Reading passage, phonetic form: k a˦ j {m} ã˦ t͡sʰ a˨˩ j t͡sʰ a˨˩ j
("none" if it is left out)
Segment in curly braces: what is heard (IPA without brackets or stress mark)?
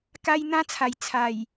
n̪